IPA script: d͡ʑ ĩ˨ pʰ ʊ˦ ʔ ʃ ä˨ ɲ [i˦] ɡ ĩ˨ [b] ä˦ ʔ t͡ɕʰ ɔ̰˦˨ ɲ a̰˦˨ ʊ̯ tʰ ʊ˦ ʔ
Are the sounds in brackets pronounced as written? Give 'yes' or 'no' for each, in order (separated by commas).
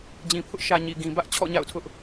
no, yes